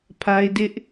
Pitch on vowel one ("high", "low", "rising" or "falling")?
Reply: high